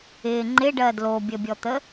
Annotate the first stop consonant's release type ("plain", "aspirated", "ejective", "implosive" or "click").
click